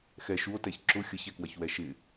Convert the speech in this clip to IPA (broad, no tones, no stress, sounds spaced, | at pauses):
x ɛ ʃ u o̯ t ɛ ç ǁ ʊ xʲ ə ç ɛ k w ɐ ç w ɛ ʃ ɪ